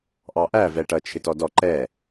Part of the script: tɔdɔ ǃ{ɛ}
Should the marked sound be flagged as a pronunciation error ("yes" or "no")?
no